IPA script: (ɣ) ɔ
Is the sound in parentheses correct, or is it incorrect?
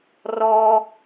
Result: incorrect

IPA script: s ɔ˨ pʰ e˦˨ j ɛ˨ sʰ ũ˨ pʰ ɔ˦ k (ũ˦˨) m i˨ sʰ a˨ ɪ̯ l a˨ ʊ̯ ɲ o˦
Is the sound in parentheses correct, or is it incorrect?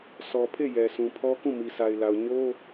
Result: correct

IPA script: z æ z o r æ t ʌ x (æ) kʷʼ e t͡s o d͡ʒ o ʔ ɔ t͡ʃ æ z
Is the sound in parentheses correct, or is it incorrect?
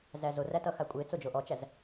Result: incorrect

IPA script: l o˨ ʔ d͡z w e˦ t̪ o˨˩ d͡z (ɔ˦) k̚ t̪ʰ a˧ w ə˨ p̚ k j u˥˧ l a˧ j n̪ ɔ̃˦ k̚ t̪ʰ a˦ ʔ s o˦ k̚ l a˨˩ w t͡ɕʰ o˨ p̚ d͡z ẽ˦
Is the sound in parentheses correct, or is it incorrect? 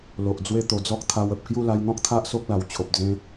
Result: correct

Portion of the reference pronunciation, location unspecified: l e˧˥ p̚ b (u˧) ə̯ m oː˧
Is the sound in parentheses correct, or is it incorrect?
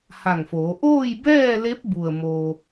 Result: incorrect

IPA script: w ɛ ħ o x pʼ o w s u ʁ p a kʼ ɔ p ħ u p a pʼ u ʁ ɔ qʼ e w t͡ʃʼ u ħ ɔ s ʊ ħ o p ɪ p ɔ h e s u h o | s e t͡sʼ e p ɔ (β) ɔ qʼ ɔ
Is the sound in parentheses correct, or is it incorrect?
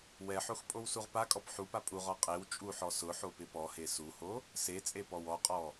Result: incorrect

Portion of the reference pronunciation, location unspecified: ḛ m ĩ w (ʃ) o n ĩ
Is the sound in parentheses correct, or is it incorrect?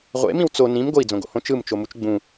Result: incorrect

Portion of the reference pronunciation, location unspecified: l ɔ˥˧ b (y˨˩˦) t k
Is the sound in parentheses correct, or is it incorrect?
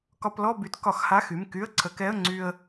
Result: correct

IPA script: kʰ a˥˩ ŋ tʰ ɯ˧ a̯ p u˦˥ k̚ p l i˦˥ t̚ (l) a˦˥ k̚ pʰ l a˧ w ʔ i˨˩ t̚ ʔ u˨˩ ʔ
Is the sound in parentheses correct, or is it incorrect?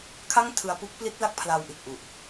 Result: correct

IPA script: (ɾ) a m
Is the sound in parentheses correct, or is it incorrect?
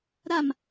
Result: correct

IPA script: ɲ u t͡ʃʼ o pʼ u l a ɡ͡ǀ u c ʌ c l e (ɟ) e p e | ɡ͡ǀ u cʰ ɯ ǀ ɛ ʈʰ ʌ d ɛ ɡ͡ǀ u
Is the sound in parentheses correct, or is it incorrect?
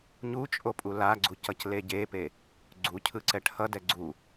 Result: correct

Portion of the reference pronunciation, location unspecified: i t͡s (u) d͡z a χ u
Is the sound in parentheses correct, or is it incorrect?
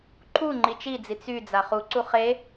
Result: incorrect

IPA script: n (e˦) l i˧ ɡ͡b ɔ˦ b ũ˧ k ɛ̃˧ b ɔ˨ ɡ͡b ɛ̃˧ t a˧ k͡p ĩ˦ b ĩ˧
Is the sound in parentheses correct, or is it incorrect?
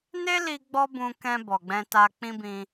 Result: correct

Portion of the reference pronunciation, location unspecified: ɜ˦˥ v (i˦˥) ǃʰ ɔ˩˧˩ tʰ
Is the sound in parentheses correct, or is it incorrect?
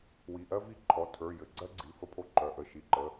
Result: correct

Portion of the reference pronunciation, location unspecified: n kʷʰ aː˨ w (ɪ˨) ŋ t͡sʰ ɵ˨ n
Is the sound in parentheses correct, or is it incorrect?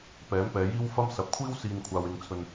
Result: correct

